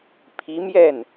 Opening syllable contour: rising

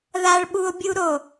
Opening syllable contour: high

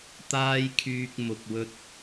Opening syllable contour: high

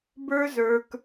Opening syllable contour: high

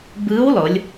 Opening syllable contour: rising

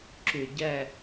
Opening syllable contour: low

